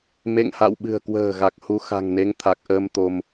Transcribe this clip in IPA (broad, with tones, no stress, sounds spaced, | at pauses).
m ḛ˧˨ ŋ h a̰˧˨ w ɓ ɨ̤˨˩ ə̯ k w ə̤ː˨˩ ɣ a˨˩ k̚ h u˧ x a̤˨˩ ŋ n e˨˦ ŋ t̪ʰ a˨˩ k̚ ʔ əː˧ m t̪ o˧ m